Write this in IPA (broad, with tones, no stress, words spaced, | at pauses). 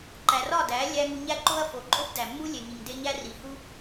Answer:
ǃæ˨rɒ˦˨dæ˨˦ lʲæ˦ ŋu˧ɲæ˦ǃo˦ɐ̯fo˨ ǃʼo˦bdæ˨mːu˦ lʲe˨ŋi˨ŋde˧ ɲæ˦ri˨hu˦